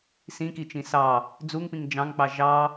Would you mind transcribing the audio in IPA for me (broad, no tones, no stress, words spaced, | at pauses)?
sĩkit͡ʃĩ sɑ | d͡zuŋpĩŋ d͡ʒɑ̃ŋk͡pɑ ʒɑ